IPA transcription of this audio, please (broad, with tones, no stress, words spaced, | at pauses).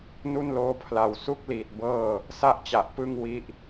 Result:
nu˥˩nloː˦˥pʰla˨˩w su˦˥k̚liː˨˩t̚ bɤː˥˩ | sa˥˩ʔt͡ɕa˨˩ʔ pɯ˥˩ŋwi˦˥ʔ